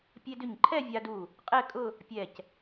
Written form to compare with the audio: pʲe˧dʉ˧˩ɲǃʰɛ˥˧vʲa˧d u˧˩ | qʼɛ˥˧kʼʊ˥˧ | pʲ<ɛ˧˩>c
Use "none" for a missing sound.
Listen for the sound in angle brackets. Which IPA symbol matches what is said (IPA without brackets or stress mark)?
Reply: ɛ˧˩